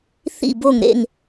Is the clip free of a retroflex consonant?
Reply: yes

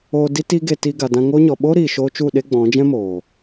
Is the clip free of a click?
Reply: yes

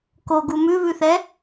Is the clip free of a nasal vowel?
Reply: yes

